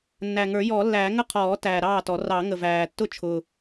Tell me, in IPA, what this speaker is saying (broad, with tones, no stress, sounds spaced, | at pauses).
nː æ˨˩ ŋ ə˞˨˩˦ j ɔː˨˩˦ lː æː˨˩˦ ŋ ə˥˩ qʰ ɔː˨˩˦ t æː˨˩ ɾ ɑː˥˩ t ɔ˨˩˦ r ɑ˨˩˦ ŋ ə˨˩ v æː˨˩ tː ʊ˥˩ t͡ʃʰ ʊ˨˩